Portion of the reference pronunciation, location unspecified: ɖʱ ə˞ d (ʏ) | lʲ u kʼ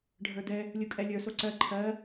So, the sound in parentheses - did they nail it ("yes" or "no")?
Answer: no